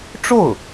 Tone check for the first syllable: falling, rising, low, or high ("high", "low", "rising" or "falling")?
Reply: falling